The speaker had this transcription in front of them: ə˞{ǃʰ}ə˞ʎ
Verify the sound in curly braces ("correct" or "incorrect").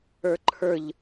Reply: correct